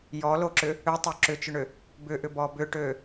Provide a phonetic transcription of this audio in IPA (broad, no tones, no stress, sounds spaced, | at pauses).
j ɔ l o ǁ ʏ | ø tˤ o ǁ ʏ t͡ʃ ʏ ɳ ʏ | b ʏ ʔ ʏ b ɔ b ʏ ʈ ø